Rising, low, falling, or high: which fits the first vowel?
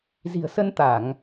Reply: low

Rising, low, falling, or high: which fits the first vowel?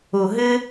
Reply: low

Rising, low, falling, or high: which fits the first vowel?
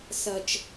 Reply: low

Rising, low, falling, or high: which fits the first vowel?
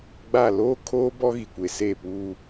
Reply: falling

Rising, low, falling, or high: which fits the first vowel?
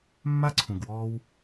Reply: high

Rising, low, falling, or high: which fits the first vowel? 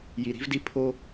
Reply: low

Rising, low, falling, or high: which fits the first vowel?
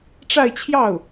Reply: falling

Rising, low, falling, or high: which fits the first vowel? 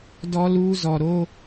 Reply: high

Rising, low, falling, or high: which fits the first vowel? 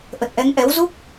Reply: low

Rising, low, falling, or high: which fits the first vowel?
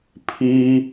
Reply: high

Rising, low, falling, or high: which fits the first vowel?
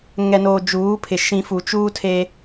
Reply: low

